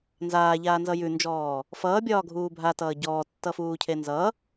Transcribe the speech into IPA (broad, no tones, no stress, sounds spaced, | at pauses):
n z aː ʎ aː n z ʌ j ʉ n d͡ʒ ɔː | f ʌː bʲ ɒː ɡʱ uː bʱ a t ʌː ɟ ɔː tː ʌ f uː cʰ e n z ʌ